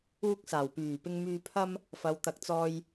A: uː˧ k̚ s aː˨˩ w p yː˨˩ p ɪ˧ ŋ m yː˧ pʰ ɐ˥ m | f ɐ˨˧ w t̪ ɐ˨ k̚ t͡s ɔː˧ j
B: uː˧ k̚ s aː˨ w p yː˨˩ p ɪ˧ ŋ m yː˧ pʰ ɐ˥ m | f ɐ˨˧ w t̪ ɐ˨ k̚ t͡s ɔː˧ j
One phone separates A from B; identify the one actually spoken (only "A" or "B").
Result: A